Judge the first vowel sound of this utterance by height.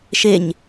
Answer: mid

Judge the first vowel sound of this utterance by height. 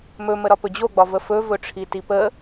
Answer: mid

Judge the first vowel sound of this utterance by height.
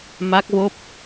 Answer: low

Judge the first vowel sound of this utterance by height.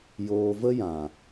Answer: mid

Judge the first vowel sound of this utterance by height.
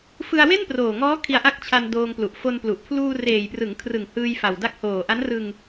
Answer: high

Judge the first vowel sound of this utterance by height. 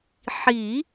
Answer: high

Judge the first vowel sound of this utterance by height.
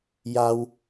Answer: low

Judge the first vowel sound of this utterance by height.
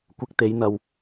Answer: high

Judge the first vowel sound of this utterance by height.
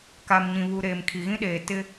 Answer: low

